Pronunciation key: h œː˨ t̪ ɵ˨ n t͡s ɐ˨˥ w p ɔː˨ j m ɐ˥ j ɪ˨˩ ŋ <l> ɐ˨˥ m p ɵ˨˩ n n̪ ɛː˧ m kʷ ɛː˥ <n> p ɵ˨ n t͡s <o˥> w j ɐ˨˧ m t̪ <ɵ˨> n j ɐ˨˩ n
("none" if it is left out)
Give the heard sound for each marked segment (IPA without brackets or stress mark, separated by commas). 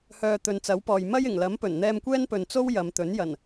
l, n, o˥, ɵ˨˥